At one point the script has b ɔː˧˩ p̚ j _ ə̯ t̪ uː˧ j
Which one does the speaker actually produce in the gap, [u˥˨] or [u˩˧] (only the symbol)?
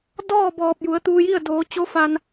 u˩˧